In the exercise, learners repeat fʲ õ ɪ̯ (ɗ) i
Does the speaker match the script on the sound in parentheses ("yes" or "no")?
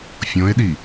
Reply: yes